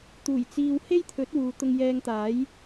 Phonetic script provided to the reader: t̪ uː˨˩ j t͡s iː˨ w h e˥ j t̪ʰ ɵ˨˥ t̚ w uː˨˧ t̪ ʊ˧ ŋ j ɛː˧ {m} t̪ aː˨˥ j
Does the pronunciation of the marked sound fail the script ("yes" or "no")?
yes